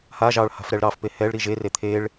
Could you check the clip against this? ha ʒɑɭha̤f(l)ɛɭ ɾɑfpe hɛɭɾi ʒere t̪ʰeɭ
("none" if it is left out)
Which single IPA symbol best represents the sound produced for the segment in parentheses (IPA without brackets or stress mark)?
ɾ